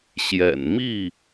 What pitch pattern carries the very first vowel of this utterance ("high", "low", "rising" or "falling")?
low